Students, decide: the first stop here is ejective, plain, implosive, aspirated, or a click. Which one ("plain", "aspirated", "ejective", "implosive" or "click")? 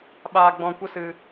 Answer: implosive